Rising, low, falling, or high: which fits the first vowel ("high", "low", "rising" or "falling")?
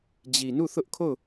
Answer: low